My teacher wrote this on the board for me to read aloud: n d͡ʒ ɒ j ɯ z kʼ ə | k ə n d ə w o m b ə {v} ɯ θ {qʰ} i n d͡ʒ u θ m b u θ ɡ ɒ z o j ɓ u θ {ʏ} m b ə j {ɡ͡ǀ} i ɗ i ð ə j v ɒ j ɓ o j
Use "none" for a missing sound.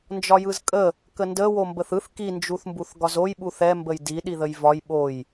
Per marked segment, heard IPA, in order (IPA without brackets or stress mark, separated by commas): θ, k, ɛ, d